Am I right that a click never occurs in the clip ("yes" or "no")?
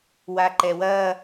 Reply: no